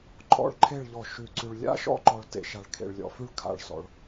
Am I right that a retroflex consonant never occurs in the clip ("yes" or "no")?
no